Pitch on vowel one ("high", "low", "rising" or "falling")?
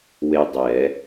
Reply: high